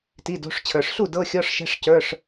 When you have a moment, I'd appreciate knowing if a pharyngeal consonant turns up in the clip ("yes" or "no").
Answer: no